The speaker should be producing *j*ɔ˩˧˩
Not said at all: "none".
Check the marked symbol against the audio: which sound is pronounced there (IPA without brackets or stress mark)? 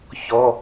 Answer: ç